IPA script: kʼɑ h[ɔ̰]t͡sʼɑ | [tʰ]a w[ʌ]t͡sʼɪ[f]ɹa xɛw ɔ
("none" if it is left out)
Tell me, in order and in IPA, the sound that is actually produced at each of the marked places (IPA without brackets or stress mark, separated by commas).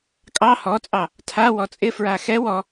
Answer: ɔ, tʰ, ɔ, f